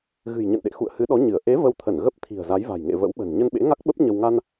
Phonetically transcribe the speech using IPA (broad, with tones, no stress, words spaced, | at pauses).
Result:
ɣɨ̤˨˩jɲə̰˧˨nɗḛ˧˨ xṵ˧˨ə̯hɨ˨˦ɗɔ˨˦ ɲɨ˧˩ə̯ ʔe˨˦ və˧wt̪ʰə˧˩n ɣə˦˥p̚ t̪ʰi̤˨˩ə̯za˨˦jva̤˨˩jŋḛ˧˨ və̰˧˥wɓə̤˨˩n ɲə˧nɓḛ˧˥ŋa˦˥k̚ɓə˦˥p̚ ɲə˧w ŋa˧n